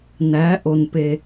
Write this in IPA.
næ˩˥ ʔo˩npe˩

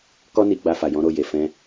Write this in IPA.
kɔ˦ni˧ ɡ͡ba˧fa˨ jɔ̃˨˦ɾo˦˨ je˨fɛ̃˧

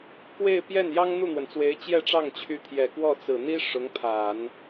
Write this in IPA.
kwe˥˧ɪ̯ pjɛ˥˩n jɑ˥ŋn̪u˥˩n̪wə˩nt͡swe˧˥ɪ̯ t͡ɕjɛ˥˧ʈ͡ʂɑ˥˩ŋt͡ɕʰy˧˥ t̪ʰjɛ˨˩kwɔ˥˩ t͡sɹ̩˨˩n̪i˥ ʂʊ˧˥ŋpʰa˨˩˦n

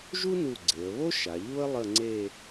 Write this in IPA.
ʒu˥nu˧˩ɡ͡ǀe˩˧ə̯βo˥ ʃa˩˧ʎu˥ə̯ lˠə˥˧ŋ͡ǀe˥˧

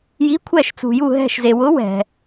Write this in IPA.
ji˨˥kʷʰɛ˧˩ʃt͡sṳ˩ju˧˩ ɦɛ̤˧˩ʃze˩wʊ˨˥ wɛ̤˩

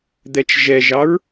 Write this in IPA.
d̪ɛt͡ʃʒɛʒɑɹ

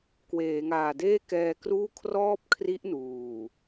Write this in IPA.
kweː˩˦ŋaː˨˩ deː˥˩kɛː˧kruː˥˩ kʰrɔː˥˩p̚kʰri˦˥ʔ nuː˨˩

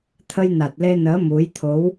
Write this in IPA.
t̪ʰə˧jna˨˩t̚le˧nəː˨˦ mu˨˦jt̪ʰo˨˦w

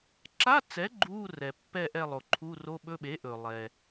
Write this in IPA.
ǁa˧˥˧t͡sɛ˩˥ ɡ͡ǃu˧˥˧ rɛ˩pːɛ˦˨ʔɛ˦˨lˠo˩ ǃʰu˧˥˧ro˧˥˧ɓɵ˧˥˧ ɓe˩˥ʔɵ˩ lˠɛ˩

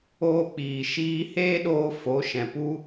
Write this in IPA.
oː˧k͡piː˨ ʃiː˧ heː˦ɗoː˧ fo˨˦ʃɛ̃˨pu˦

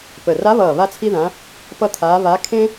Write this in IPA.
pə˧˩ ra˧˥βʌː˧˩ βa˥t͡sʰi˥ðã˧˥ | pʌ˥˧t̪ʰaː˧˥ βa˧˥kʰẽ˥

